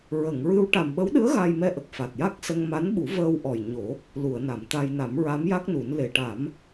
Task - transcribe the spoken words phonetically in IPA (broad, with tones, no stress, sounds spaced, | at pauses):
ɹ ə˨˩˨ ŋ ɹ ɨ˧ w ʈ a˨˩ m ɓ ə˧˥ w ɗ ɨ˧˥ ə̯ ɣ a˧ j m ɛ˧ ʔ ə˨˩ k̚ f a˨˩ t̚ j a˦˥ k̚ s ə˧ ŋ m a˧˥ n ɓ u˨˩˦ v əː˧ w ʔ ɔ˨˩ j ɲ o˨˩˦ | l u˨˩˨ ə̯ n a˨˩˨ m t̪ a˧ j n a˨˩˦ m ɹ a˧˥ m j a˦˥ k̚ n u˨˩˦ n l e˨˩˨ ʈ a˨˩˦ m